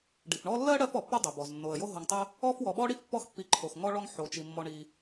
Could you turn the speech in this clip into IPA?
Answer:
ɖ i˩ f ɳ ɔ˦ lː ɜ˥ ɽ ɜ˥ f ɔ˩ pː o˥ dˤ o˩ b ɔ˩ z nː o˩ ə̯ j o˦ ɦ o˨ ŋ tˤ ɜ˥ | ɔ˥ f w ɔ˨ ɓ ɔ˥ ɽ i˥ f pː ɔ˥ x pː i˨ ǃʰ o˩ x ŋ ɔ˦ ɭ ɔ˦ ŋ ħ o˩ t͡ʃ i˩ mː ɔ˨ ɳ i˨

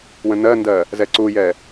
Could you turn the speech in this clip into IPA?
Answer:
w ə̃ n ɜ n d ɜ | z ɛ ǀ u j ɛ

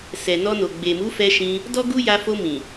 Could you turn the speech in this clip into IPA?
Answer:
s ɛ˨ n ɔ˧ n o˨ ɡ͡b e˨ m u˨˦ f ɛ˧ ʃ ĩ˧ | d ɔ˦ ɡ u˦ j a˧ f o˧ m ĩ˨

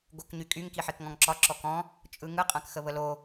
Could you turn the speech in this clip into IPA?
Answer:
ɡ o k ɲ y kʼ y ŋ k i ħ i k ŋ ɔ̃ ŋ ǁ ɒ ǁ ɔ k ɔ̃ | t͡ʃʼ ɯ ŋ ɯ qʼ ã k x ə β ə l o

